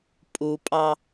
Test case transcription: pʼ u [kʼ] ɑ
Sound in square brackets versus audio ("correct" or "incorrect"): incorrect